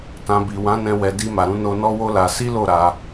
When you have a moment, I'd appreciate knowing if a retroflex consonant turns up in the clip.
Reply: no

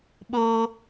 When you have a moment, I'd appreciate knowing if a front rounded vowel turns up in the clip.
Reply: no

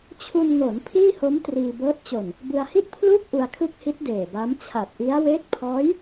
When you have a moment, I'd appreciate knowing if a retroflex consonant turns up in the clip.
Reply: no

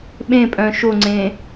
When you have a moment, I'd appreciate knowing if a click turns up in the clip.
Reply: yes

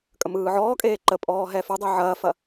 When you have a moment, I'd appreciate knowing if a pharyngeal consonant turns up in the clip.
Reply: yes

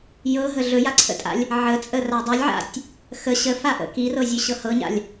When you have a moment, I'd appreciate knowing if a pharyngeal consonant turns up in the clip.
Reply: yes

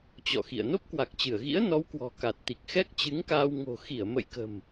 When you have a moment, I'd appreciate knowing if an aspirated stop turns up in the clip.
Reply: no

